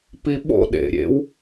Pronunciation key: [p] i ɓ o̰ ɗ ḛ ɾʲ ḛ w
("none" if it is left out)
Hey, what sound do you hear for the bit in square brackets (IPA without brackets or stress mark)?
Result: p